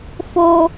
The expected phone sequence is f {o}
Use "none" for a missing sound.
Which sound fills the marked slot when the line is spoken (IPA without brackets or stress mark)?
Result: o